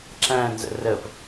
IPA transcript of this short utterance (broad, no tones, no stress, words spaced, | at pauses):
ǁæ̃nzə̰ rəp